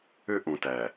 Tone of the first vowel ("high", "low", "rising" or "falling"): high